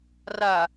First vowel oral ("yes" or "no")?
yes